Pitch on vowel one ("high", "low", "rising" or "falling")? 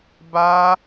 high